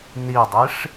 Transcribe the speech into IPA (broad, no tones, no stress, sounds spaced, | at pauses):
n i dˤ i ʂ